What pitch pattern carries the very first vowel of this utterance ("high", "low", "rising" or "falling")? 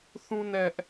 high